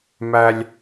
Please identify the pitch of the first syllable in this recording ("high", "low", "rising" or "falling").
high